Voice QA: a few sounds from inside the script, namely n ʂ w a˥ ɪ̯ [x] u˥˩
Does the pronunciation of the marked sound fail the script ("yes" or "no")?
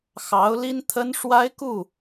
yes